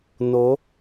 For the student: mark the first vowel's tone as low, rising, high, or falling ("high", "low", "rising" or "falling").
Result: rising